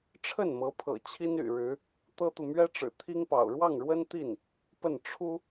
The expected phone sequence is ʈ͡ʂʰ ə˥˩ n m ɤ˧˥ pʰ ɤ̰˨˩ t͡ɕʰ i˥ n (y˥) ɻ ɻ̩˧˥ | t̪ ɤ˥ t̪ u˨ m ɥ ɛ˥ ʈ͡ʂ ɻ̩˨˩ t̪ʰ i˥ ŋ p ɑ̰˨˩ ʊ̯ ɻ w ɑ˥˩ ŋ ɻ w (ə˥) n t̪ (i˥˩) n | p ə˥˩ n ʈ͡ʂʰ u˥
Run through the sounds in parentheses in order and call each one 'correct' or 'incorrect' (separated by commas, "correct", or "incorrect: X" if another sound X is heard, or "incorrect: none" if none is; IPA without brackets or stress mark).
incorrect: y̰˨˩, correct, correct